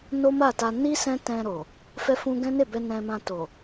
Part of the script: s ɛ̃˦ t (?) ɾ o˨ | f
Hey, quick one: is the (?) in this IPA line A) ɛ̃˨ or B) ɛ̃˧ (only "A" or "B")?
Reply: B